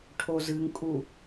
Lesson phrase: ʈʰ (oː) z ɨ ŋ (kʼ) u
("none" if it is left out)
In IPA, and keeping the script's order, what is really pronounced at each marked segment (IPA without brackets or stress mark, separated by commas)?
o, kʼ